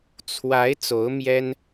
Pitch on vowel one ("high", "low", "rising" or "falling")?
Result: rising